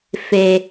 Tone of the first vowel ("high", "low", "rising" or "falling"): high